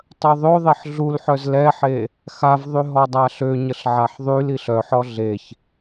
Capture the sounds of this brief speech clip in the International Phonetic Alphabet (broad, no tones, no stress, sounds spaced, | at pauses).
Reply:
tˤ œ ðˤ ø ðˤ e ħ ɮ u l ħ œ z l ɛ ħ e | x a v ðˤ y ɦ ɔ dˤ a ɬ ø ɲ ə ɬ ʕ a ħ ðˤ y l i ɬ œ ħ ɔ ɮ e ç